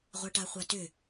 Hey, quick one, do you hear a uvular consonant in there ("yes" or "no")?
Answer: yes